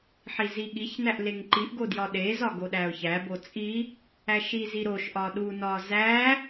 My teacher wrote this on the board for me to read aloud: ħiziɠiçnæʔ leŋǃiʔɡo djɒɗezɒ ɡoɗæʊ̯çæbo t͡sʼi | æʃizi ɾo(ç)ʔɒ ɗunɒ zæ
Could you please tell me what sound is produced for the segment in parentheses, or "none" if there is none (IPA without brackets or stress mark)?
ʃ